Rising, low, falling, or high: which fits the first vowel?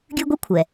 high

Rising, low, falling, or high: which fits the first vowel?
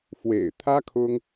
low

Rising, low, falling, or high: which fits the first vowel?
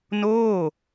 falling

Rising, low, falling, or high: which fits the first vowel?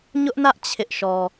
high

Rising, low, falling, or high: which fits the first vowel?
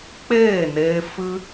falling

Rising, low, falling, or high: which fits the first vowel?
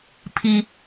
low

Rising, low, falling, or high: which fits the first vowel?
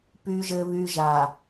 low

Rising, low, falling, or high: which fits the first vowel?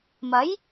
rising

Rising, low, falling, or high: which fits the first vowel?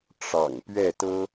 low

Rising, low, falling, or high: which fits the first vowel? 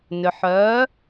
low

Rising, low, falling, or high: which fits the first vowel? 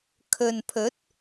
low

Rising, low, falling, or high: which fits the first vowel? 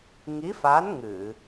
rising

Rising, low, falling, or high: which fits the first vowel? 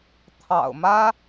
low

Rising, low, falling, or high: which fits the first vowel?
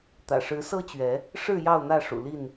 low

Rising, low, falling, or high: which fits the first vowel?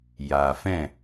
low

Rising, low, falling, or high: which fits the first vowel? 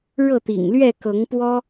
falling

